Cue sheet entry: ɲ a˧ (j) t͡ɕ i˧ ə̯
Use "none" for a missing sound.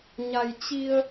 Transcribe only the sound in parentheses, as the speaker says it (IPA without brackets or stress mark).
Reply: j